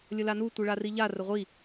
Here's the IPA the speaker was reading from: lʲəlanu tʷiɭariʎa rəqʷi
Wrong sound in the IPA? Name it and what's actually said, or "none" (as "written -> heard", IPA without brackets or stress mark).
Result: qʷ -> ʁʷ